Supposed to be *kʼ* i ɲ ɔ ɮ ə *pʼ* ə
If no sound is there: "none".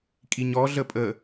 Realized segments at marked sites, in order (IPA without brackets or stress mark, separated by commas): kʼ, pʼ